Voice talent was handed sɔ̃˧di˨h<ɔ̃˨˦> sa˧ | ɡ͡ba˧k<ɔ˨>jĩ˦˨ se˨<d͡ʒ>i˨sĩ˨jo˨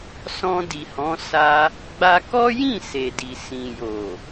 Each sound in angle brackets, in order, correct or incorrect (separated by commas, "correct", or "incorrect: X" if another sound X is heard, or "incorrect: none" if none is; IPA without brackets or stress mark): correct, incorrect: ɔ˦, incorrect: d